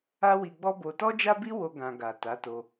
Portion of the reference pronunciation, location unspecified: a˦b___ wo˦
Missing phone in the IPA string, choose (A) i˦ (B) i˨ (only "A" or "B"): A